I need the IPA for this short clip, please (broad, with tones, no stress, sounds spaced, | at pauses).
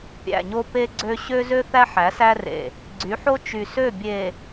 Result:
pʲ æ̰˨ ɲ o˦ p e˦ ɡ͡ǀ ø˦ ɕ ø˦ z ø˦ θ æ˦ ħ æ˨˦ s æ˦ r ḛ˨ | ɡ͡ǀ y˨˦ ħ o˦ t͡ʃ y˨ s ø˦˨ bʲ e˨